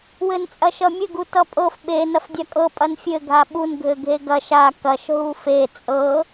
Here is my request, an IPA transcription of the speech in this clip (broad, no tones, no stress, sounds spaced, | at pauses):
w ɘ n t͡sʼ ɐ ʃ ʌ mʲ ɘ ɡ u t ʌ pʼ ɤ f ɓ e n ɐ f dʲ a kʼ ɤ pʼ ɐ n fʲ ɘ ɡʱ a ɓ u n ɡʱ ɘ ɡʱ e ɡ ɐ ʃ a k ɐ ʃ ɦ u f e t͡sʼ ɤ